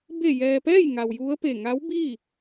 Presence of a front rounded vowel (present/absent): absent